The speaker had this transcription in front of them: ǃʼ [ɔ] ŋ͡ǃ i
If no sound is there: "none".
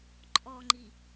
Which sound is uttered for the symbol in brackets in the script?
ɔ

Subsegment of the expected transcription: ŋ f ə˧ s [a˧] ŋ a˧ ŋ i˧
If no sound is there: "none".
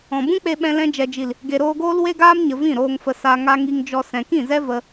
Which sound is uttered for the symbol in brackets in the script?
a˧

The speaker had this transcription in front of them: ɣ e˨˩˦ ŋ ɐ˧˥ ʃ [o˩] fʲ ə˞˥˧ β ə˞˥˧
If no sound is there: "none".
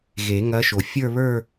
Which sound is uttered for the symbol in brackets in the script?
o˩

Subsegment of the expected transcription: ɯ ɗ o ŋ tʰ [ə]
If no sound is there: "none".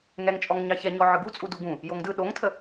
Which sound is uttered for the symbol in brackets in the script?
ə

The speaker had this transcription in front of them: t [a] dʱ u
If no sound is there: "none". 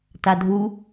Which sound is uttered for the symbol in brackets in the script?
a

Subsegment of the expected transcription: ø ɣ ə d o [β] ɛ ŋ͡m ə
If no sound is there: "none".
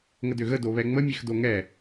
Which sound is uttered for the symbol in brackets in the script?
β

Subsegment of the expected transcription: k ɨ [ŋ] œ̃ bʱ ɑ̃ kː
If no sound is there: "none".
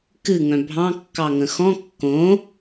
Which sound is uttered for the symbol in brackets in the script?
ŋ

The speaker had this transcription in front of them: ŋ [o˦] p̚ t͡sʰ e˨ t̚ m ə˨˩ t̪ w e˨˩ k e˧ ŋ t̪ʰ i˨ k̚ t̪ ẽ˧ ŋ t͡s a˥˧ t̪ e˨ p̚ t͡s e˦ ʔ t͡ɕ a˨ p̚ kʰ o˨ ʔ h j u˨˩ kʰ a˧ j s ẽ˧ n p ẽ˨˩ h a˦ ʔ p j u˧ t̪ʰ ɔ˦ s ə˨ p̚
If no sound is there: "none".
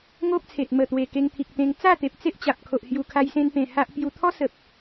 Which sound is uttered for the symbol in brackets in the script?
o˦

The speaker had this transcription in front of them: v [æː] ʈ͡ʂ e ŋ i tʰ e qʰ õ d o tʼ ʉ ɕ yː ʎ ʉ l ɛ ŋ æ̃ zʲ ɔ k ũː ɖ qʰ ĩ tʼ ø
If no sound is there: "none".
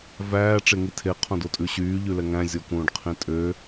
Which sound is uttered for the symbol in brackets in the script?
æː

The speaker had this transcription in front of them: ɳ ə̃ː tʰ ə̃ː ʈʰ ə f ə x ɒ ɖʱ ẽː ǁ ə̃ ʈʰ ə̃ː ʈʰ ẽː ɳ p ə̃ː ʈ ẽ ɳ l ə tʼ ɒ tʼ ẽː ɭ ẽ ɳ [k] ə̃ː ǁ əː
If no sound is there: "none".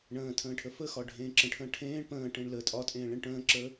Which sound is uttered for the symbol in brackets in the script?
ʈ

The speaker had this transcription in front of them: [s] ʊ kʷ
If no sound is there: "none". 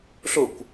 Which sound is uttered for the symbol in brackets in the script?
ɬ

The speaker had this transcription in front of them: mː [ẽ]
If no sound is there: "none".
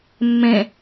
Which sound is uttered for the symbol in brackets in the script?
ẽ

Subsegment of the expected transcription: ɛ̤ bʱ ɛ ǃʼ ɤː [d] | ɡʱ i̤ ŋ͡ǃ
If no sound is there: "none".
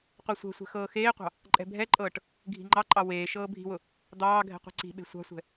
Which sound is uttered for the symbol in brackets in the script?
ʈ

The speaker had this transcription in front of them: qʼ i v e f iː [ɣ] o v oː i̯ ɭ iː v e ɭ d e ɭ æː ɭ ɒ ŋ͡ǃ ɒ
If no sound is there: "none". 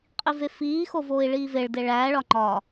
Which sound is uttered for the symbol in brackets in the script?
x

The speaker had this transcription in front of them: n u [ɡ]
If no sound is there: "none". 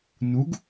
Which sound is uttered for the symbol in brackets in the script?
ɡ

